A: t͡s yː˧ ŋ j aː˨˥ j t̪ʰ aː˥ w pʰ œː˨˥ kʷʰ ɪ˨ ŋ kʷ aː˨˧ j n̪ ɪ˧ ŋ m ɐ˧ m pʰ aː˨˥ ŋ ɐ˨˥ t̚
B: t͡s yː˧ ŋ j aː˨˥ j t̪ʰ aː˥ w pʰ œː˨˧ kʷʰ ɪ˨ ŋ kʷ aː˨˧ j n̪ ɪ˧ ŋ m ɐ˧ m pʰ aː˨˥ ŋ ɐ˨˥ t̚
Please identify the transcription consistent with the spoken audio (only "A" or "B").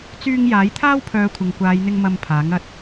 B